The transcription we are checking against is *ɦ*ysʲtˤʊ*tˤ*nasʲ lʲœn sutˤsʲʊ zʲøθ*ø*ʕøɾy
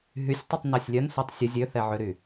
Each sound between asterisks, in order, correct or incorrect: correct, correct, incorrect: ɛ

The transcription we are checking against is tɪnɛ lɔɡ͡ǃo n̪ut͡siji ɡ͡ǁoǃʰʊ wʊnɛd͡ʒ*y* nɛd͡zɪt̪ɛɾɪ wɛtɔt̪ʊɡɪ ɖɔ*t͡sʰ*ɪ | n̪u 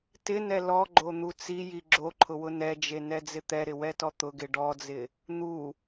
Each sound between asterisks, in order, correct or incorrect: incorrect: e, incorrect: d͡z

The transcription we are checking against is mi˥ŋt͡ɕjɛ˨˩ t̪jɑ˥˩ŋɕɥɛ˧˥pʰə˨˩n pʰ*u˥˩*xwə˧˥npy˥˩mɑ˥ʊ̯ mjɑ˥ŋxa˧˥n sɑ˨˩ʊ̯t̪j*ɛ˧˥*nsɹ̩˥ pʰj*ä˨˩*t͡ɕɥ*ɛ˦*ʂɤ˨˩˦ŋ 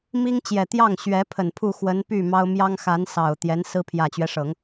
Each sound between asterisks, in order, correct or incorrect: correct, correct, correct, correct

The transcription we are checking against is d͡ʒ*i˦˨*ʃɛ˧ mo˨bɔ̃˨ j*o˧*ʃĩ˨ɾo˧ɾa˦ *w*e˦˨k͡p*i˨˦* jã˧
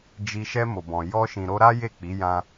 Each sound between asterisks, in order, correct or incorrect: incorrect: i˨, incorrect: ɔ˧, incorrect: j, correct

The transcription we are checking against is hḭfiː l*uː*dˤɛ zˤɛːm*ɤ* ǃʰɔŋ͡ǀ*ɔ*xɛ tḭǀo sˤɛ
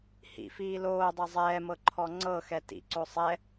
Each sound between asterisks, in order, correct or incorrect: incorrect: oː, correct, incorrect: ɤ

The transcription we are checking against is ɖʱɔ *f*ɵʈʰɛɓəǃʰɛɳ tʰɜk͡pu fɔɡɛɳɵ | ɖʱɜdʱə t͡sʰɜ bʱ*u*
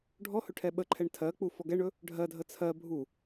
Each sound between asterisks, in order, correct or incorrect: incorrect: h, correct

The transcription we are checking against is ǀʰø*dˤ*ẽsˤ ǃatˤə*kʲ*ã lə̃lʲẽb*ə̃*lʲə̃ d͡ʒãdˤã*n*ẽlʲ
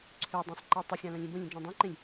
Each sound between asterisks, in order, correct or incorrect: correct, incorrect: xʲ, correct, incorrect: ǃ

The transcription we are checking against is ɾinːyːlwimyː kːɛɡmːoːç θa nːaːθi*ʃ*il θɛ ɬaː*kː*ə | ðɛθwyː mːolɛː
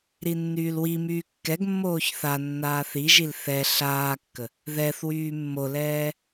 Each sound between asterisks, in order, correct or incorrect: incorrect: ʒ, correct

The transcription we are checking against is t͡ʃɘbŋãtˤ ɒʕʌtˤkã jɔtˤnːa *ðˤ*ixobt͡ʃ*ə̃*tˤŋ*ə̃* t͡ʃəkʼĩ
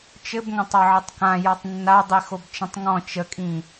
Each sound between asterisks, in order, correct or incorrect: incorrect: dˤ, correct, incorrect: ɔ̃

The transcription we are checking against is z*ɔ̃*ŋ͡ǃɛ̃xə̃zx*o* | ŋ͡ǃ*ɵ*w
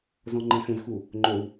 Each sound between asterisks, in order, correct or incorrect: correct, incorrect: u, correct

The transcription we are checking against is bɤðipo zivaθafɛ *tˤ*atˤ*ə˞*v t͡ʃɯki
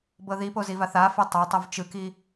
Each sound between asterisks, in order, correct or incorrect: correct, incorrect: ɤ

